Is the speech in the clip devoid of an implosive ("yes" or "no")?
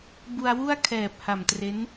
yes